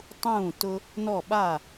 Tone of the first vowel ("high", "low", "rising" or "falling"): falling